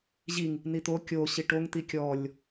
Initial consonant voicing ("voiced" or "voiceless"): voiced